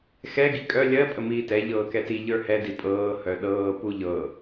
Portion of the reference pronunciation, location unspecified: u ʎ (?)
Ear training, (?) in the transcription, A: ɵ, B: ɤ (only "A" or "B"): B